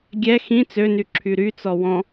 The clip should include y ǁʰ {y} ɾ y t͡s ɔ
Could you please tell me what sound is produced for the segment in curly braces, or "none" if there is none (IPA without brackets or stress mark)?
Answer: y